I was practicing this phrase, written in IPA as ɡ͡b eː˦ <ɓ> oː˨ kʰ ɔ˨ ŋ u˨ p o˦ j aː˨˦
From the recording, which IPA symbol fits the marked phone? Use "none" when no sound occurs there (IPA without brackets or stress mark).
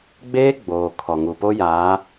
ɡ͡b